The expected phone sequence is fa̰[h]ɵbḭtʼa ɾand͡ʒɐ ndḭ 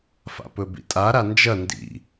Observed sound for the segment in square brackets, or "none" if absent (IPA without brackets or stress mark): p